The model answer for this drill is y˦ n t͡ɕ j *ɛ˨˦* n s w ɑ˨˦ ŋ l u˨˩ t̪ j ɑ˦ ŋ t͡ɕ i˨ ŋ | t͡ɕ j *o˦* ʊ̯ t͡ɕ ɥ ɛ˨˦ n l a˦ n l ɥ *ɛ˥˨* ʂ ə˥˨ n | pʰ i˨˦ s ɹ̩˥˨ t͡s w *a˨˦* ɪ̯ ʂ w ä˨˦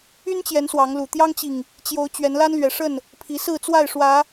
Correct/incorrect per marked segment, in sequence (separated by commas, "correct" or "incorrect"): correct, incorrect, incorrect, incorrect